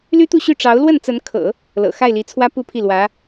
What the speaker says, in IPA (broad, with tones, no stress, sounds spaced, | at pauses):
l y˥ t̪ u˥˧ ɕ y˥˩ ʈ͡ʂ ɑ˧˥ ʊ̯ l w ə˥˩ n t͡s ə˧˥ n kʰ ɤ̰˨˩˦ | l ɤ̰˨˩ x a˥˩ ɪ̯ l i˧˥ t͡sʰ w ä˥ p u˥˧ pʰ i˥˩ l w ä˧˥